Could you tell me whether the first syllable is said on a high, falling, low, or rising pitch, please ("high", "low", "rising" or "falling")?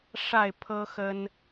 falling